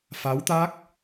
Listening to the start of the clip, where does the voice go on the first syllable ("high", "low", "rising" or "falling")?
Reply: rising